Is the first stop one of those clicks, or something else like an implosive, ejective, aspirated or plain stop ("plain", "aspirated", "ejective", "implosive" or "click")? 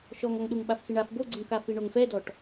implosive